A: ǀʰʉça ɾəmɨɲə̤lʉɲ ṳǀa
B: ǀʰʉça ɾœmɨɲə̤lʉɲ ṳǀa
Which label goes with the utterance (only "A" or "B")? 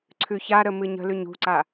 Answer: A